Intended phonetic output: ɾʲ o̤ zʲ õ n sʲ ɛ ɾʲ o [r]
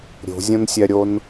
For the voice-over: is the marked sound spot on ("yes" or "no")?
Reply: no